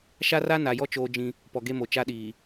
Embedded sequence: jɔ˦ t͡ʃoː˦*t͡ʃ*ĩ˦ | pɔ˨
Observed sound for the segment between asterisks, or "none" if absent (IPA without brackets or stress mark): d͡ʒ